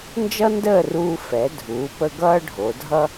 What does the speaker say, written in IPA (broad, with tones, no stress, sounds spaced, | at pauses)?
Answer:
n d͡ʒ ʌ˥ n d əː˥˧ r uː˧ f ɛ˩˧ dʱ uː˩˧ p ə˧ ɡ ʌː˥ ɖʱ o˩˧ dʱ ʌ˥